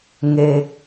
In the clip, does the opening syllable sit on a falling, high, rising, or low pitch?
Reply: low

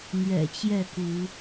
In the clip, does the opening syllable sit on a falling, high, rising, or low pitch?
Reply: low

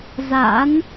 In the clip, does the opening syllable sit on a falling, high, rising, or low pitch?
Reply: rising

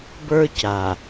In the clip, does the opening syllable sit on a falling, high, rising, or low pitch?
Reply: high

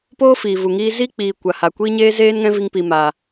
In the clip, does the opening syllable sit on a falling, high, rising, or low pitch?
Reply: high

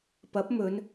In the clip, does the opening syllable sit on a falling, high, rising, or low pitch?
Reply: rising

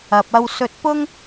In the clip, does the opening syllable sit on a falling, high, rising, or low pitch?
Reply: low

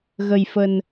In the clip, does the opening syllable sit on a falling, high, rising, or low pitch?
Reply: low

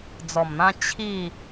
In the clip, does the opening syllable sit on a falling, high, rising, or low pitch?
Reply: low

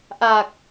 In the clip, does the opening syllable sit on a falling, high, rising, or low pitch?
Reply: low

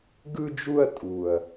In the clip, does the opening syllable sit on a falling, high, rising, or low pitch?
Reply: high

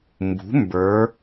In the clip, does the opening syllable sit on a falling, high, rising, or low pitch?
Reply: rising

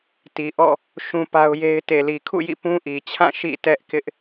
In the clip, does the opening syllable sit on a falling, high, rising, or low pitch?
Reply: low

